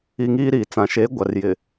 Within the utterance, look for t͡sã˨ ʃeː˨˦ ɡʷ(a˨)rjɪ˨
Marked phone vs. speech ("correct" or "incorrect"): correct